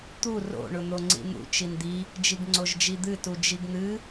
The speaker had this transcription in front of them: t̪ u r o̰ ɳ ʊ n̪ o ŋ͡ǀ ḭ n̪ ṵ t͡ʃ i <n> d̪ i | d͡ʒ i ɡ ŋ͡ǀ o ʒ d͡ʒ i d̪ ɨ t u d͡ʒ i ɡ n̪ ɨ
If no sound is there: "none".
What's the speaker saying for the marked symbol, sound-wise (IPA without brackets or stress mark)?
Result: n